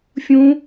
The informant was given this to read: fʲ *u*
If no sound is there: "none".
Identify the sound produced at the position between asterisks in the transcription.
ũ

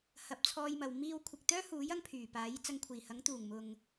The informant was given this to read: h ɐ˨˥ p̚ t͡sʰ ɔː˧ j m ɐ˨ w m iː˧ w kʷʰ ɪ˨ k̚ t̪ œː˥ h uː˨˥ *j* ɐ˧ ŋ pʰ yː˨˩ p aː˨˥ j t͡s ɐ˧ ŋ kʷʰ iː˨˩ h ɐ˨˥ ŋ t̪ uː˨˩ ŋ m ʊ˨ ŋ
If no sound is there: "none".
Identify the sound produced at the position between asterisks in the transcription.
j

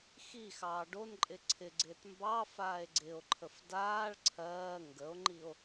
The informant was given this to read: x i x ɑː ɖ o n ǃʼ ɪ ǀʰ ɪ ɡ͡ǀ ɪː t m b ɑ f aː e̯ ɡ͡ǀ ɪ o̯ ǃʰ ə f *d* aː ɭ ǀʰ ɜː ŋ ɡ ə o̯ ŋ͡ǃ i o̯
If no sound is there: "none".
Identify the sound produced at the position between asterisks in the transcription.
d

